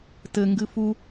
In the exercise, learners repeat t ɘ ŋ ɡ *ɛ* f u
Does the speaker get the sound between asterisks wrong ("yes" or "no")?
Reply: yes